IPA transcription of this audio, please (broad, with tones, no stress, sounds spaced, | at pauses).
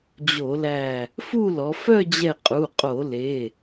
d͡ʑ o˧˩˧ l æ˧˩ | f u˥˧ l ɔ˩˧ f œ˥˧ d͡ʑ ɛ˧˩ qʼ u˩˧˩ qʼ o˧˩˧ l e˩˧˩